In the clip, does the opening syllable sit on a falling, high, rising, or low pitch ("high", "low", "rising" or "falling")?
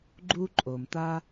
high